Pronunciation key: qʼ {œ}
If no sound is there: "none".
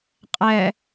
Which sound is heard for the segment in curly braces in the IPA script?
ɛ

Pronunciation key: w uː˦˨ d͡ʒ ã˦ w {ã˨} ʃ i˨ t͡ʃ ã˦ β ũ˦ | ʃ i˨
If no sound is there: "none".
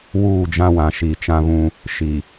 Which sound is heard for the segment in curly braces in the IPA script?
ã˨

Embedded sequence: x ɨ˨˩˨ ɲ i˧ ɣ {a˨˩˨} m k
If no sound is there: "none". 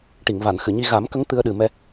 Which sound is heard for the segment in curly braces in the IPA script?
a˨˩˦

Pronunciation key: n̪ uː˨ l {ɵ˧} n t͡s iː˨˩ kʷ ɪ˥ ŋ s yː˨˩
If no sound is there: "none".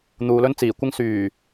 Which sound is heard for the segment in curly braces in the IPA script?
ɵ˥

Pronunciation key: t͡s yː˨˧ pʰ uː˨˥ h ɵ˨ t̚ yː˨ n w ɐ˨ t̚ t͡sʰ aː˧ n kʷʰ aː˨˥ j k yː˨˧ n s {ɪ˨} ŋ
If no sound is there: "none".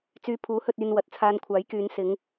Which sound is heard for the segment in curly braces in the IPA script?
ɪ˨˧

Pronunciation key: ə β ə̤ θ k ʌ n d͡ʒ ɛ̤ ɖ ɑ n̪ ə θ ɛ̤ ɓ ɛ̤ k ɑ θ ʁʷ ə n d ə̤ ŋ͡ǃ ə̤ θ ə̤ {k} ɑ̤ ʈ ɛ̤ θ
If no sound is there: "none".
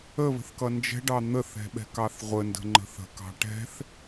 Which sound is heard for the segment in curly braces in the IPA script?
k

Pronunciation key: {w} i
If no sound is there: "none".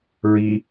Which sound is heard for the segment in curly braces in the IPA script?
ɹ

